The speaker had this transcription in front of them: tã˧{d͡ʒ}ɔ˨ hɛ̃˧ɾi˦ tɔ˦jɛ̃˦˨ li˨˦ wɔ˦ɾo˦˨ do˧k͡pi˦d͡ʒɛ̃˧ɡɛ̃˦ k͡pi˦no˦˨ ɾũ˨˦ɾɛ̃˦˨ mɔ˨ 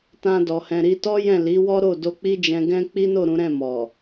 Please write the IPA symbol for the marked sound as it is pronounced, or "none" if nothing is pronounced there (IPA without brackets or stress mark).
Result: d